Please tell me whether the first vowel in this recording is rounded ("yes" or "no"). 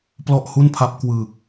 yes